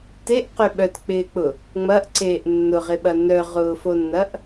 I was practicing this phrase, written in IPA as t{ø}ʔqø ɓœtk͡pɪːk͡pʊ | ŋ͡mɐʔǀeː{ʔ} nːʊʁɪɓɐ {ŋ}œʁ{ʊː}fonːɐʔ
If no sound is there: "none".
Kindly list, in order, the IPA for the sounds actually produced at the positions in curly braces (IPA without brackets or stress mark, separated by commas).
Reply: e, ʔ, n, ʊː